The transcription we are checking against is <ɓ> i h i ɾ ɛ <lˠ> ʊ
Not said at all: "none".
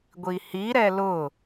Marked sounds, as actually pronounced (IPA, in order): ɡʷ, l

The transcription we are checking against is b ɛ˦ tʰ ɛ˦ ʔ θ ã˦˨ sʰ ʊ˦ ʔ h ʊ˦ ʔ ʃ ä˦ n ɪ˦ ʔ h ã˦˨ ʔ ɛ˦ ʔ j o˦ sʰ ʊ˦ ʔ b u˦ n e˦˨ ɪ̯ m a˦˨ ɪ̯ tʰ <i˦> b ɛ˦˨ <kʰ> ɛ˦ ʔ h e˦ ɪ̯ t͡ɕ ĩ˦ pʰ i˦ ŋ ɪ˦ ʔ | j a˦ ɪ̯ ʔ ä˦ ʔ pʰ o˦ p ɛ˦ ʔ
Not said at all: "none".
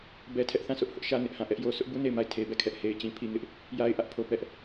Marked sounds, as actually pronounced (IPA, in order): e˦, kʰ

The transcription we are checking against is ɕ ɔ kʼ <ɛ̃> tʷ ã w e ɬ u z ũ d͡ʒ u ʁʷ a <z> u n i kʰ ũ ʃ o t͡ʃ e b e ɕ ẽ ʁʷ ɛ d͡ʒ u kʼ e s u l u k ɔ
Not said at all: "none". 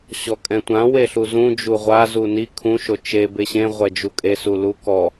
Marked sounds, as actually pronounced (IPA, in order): ɛ̃, z

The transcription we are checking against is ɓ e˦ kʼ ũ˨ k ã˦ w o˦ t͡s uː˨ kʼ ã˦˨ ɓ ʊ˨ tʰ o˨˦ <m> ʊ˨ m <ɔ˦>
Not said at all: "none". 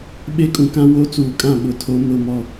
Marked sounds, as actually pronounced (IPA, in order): m, ɔ˦˨

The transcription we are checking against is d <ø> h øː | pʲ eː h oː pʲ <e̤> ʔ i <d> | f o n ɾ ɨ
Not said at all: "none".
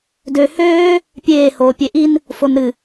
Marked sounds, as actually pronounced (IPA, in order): ø, e, n

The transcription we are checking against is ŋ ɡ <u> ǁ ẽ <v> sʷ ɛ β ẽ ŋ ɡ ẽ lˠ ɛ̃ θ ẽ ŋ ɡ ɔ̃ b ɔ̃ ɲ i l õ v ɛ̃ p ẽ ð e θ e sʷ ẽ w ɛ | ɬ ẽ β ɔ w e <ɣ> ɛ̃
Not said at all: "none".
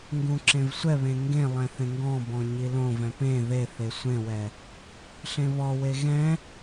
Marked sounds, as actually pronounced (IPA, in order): ũ, v, ɣ

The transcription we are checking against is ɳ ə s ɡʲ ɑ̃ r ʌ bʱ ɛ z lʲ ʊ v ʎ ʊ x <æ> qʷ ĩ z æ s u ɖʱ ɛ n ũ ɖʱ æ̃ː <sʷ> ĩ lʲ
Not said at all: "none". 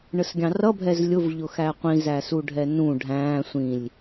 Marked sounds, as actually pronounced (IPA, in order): æ, sʷ

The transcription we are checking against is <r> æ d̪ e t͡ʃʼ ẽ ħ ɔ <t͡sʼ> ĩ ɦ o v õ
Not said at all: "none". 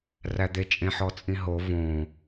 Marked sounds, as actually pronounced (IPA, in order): r, t͡sʼ

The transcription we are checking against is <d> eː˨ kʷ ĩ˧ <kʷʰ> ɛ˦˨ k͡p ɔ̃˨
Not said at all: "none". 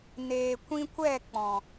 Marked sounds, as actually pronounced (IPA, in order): n, kʷ

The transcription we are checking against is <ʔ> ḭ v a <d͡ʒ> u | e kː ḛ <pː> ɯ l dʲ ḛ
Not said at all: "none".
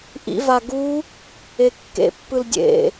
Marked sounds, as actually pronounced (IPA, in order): ʔ, ɡ, pː

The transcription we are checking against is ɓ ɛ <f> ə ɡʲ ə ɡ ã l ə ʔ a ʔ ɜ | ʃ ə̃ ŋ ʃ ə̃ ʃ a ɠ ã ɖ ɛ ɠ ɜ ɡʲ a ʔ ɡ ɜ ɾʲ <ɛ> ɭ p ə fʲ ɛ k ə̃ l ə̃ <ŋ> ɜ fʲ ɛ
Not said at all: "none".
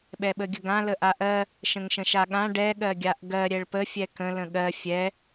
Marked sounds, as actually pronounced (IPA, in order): ɓ, ɛ, ɠ

